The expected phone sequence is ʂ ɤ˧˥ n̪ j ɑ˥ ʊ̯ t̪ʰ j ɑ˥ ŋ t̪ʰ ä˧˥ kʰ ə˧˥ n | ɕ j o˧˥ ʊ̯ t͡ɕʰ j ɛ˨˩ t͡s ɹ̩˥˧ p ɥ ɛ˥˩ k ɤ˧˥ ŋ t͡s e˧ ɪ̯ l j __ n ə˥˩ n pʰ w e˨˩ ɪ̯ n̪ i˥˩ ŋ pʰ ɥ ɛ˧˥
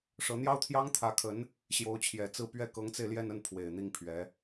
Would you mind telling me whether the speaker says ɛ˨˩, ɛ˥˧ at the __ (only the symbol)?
ɛ˥˧